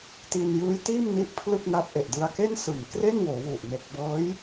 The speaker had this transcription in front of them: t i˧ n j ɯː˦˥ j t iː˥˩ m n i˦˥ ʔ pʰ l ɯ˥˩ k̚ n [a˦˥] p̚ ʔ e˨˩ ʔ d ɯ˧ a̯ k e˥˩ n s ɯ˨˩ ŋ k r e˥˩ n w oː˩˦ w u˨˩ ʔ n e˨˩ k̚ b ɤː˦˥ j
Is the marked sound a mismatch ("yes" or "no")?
no